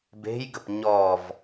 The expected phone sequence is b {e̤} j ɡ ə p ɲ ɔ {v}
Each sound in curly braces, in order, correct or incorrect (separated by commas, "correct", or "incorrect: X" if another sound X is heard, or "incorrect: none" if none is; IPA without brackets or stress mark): correct, correct